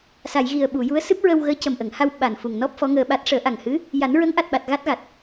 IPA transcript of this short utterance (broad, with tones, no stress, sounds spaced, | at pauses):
s a˨˩˨ j ɣ i˨˩ ə̯ ɓ u˨˩˨ j u˧˥ ə̯ s ɨ˦˥ p̚ ɹ ə˧ w ɣ əː˧˥ c ə˨˩ m ʔ ə˨˩˨ ŋ h a˧ w ɓ a˨˩ n f u˨˩ ŋ n ɔ˦˥ p̚ f ɔ˧˥ ŋ əː˧ ɓ a˦˥ t̚ ʂ əː˨˩˦ ʔ a˨˩ ŋ h ɨ˧˥ | j a˨˩˦ n ɹ ə˧˥ ŋ ʔ a˨˩ t̚ ɓ a˨˩ t̚ ɣ a˦˥ t̚ ɣ a˨˩ t̚